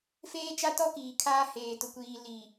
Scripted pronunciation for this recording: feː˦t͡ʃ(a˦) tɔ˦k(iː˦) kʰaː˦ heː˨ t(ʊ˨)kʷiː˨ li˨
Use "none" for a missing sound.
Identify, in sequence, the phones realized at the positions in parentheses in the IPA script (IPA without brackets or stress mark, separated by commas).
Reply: a˦, iː˨, ʊ˨